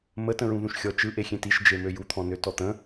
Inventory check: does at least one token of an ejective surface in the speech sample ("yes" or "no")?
no